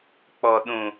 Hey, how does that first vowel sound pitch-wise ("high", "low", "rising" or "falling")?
low